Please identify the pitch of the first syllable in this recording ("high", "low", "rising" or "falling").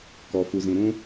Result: low